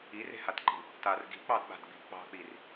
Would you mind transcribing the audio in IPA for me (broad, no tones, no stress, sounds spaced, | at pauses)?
i r e̤ h a t ǃ i̤ | t a r ɡ i̤ k͡p ɑ d ɓ a̤ d ɡ͡b i̤ ʔ k͡p ɑ̤ k͡p i r